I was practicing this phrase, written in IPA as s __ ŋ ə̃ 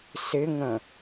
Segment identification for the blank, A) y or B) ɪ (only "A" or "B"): B